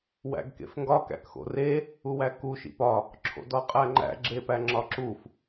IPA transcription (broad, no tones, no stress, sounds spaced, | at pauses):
w æ̰ ɡ k ḛ f ŋ ɡ ɒ k æ̰ k x o̰ r e | u w æ k u ʃ ḭ p ɒ | ǁʰ o̰ d ɒ qʼ æ ŋ͡ǃ æ̰ ɡ͡ǁ e p æ ŋ͡ǁ ɒ ǁ u f